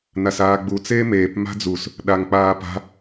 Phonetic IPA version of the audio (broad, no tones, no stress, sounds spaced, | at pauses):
n a s aː ɡ͡b u t͡s eː m eː p m a̤ d͡z u s | ɗ a ŋ k͡p aː p a̤